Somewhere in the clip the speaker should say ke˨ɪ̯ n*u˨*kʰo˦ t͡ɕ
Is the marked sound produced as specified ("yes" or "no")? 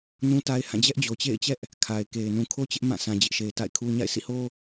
no